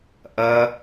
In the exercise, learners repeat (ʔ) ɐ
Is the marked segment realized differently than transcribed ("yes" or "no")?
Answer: no